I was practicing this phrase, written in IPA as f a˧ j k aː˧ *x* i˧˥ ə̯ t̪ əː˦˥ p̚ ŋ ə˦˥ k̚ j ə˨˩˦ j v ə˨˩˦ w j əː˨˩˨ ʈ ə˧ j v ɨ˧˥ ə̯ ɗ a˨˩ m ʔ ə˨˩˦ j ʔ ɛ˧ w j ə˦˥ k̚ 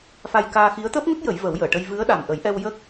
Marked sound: correct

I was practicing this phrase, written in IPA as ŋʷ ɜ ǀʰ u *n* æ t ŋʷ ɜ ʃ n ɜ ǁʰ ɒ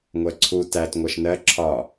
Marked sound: incorrect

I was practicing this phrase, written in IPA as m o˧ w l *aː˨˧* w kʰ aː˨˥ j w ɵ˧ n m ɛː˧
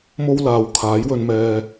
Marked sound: incorrect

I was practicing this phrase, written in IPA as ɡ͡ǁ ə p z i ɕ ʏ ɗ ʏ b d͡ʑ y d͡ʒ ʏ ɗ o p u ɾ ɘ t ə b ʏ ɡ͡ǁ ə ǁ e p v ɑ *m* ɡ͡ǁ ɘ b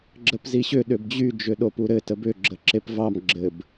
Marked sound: correct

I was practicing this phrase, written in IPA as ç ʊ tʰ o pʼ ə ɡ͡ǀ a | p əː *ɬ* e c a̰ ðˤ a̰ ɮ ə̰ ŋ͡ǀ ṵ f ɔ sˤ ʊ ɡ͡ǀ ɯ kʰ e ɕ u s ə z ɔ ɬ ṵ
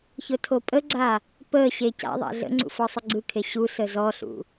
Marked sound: incorrect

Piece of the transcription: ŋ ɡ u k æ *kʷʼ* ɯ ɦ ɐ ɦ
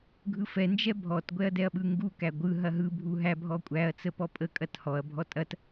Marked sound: incorrect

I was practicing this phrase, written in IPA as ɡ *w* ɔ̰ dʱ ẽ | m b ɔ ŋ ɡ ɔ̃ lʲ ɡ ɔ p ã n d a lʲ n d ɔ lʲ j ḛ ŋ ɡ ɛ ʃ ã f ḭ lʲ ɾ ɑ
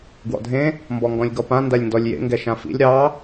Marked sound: correct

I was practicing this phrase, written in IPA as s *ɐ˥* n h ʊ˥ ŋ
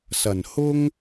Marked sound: incorrect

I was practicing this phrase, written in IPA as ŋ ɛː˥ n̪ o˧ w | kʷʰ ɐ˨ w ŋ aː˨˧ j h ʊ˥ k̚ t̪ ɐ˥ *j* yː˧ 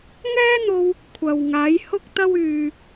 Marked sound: incorrect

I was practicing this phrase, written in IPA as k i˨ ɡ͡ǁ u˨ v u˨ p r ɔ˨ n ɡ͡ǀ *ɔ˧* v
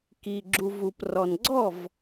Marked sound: incorrect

